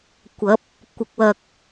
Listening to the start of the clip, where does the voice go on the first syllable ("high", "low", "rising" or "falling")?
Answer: rising